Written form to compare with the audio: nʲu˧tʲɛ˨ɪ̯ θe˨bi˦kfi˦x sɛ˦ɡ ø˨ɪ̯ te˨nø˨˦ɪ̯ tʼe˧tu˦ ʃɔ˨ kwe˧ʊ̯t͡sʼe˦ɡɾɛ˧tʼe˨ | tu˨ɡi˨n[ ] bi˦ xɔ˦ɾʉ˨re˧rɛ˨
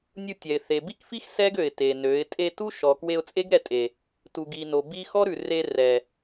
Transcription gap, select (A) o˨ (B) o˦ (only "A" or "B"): A